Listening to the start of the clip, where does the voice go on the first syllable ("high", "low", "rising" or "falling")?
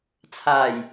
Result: low